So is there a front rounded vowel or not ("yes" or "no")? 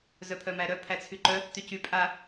yes